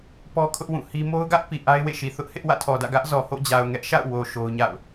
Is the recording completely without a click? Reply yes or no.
yes